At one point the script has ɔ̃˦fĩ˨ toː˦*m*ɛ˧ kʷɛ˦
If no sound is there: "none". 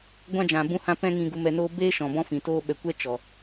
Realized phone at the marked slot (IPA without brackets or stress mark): ɓ